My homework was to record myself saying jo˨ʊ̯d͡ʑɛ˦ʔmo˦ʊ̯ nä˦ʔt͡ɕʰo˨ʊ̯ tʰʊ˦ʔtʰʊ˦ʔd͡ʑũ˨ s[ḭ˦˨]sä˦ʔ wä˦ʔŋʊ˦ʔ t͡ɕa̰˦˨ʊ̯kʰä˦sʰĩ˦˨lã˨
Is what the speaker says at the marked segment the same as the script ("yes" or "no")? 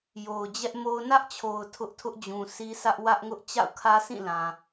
no